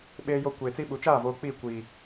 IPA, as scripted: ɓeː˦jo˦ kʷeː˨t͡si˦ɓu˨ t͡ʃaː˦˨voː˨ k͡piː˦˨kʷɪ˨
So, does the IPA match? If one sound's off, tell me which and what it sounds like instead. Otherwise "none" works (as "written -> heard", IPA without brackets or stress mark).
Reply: ɪ˨ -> i˨